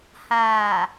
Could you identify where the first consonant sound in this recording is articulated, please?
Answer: glottal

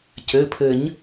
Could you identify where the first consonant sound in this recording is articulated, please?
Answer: palatal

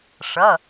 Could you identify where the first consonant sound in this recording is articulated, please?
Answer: retroflex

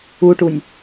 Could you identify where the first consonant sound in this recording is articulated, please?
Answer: retroflex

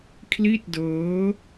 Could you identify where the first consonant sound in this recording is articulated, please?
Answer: velar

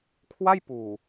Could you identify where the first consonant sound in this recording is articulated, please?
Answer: velar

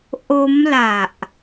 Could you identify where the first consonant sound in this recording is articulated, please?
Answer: glottal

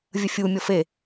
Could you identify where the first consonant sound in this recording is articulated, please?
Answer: labial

